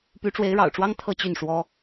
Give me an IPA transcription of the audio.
py˧˥ʈ͡ʂwe˧˥ɪ̯ɻɑ̰˨˩ʊ̯ʈ͡ʂwɑ˥ŋ t̪ʰɤ˥˧t͡ɕy˥˩nʂwɔ˥

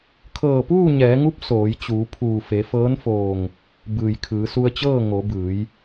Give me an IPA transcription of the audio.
kʰɤː˧˩puː˥˨ɲɛː˩˧ŋu˧˥p̚ soː˩˧jt͡ɕuː˩˧pʰuː˧˩ fe˩˧fɤː˧˥nfoː˧˩ŋ | bɯː˩jkʰɯː˩˧su˧ə̯t͡ɕɤː˥˨ ŋo˩˧bɯː˩˧j

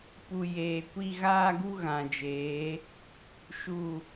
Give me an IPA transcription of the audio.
pu˨ jeː˨kʷi˦ ɣaː˦ɡu˦ɣã˨ d͡ʒeː˨˦ | ʃu˦˨

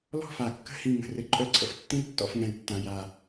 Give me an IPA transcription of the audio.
lɔ̤˥˧fa˩˧ kːə̤˥˧hĩ˧˩ ŋə̤˧˩rɘ˧ǃʼœ˥˧ǀʰə̰˥f tːĩ˥ltːɔ̰˧f ŋɛ̃˧˩ltːã˧˩ja˧˩

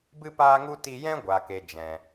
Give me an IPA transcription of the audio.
bɨ˦paː˦ŋu˦ ti˧jɛ̃˦ ɡʷa˨ke˨ d͡ʒɛ̃˨

